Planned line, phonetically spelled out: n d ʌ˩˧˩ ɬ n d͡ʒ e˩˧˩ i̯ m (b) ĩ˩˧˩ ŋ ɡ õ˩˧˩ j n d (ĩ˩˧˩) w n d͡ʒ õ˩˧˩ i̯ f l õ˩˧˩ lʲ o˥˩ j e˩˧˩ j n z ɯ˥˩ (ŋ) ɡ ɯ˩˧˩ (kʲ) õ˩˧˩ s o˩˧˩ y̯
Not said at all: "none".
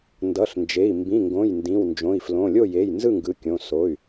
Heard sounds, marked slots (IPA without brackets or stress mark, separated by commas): b, ĩ˩˧˩, ŋ, kʲ